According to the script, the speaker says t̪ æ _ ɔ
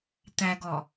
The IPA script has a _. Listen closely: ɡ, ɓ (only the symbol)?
ɡ